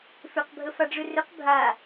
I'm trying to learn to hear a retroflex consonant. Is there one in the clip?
yes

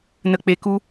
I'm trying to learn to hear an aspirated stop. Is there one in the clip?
no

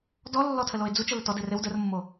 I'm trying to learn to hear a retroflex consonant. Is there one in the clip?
no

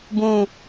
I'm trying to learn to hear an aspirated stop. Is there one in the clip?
no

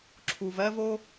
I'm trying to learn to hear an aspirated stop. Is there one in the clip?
yes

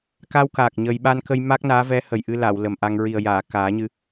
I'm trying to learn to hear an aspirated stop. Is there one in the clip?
no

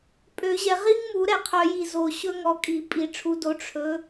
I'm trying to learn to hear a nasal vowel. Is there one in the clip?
no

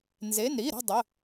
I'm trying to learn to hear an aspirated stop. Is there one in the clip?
no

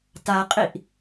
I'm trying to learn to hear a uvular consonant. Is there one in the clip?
yes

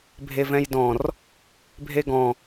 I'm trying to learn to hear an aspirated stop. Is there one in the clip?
no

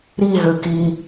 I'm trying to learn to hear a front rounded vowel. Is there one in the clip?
yes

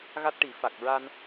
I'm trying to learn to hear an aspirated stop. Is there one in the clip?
no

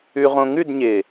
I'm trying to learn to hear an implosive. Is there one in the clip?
no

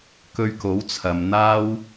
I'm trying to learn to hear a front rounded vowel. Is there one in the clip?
no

